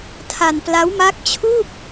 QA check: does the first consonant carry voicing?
no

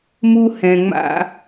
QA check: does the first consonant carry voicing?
yes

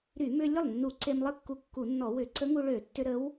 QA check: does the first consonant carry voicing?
yes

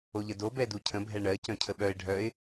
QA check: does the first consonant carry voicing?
yes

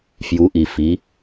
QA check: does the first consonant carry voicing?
no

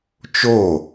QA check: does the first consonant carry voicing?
no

